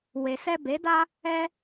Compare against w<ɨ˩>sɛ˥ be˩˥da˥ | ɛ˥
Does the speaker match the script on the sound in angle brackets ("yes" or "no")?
no